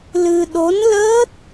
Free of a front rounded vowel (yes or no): yes